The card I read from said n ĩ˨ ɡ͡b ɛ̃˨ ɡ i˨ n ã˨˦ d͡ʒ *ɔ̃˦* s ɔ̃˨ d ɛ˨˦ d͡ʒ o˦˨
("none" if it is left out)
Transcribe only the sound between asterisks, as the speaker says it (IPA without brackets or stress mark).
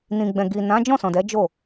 ɔ̃˦˨